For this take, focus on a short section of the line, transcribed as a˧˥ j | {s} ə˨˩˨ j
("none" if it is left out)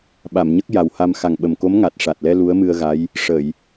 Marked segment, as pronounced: ʂ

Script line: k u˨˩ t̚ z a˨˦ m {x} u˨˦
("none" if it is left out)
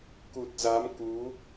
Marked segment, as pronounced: k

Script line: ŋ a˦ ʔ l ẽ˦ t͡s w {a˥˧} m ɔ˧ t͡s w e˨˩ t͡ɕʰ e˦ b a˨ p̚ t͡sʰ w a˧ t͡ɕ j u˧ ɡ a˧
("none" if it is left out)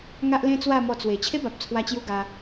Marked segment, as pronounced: a˥˧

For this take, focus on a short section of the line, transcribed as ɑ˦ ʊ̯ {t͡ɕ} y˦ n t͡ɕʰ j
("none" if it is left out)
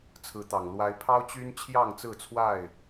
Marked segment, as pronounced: t͡ɕ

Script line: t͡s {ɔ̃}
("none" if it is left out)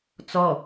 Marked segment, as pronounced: ɔ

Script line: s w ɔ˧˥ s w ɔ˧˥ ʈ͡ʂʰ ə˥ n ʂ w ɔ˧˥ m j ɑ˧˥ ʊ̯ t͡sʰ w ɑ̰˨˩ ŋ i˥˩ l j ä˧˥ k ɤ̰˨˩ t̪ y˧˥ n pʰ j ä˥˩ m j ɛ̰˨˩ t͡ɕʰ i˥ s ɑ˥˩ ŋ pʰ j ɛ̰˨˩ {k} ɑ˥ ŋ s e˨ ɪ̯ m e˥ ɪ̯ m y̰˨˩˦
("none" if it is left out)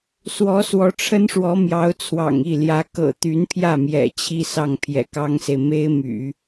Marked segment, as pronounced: k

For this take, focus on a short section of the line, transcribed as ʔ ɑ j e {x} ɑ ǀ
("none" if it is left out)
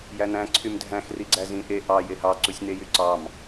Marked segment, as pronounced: h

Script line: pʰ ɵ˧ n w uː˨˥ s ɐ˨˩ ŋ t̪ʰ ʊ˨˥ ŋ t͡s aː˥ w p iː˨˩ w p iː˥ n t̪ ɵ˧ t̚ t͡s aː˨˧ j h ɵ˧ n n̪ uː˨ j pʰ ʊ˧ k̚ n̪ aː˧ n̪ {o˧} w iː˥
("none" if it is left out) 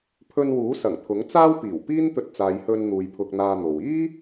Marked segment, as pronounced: o˨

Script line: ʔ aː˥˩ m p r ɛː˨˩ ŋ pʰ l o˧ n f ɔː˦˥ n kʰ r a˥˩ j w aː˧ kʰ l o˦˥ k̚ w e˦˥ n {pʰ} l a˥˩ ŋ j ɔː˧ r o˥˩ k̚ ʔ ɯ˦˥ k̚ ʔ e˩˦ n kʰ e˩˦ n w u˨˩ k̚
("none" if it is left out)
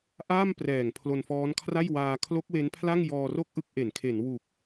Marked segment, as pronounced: pʰ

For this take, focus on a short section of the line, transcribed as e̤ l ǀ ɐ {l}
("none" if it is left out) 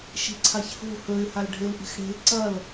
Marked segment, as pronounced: l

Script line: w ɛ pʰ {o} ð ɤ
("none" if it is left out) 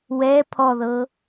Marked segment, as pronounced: ɔ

